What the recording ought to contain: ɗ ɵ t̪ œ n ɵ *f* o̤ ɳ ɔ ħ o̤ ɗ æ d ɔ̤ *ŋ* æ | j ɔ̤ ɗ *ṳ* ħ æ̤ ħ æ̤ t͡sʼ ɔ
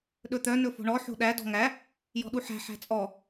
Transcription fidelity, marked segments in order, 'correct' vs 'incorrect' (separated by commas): correct, correct, incorrect